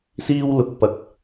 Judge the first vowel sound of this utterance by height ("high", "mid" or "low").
high